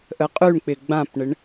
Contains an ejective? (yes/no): yes